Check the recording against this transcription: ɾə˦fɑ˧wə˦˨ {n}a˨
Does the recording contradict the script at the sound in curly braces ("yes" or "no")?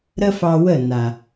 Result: no